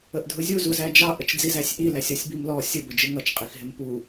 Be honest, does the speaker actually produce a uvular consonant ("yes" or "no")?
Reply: yes